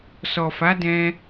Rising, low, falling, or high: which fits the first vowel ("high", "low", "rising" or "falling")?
low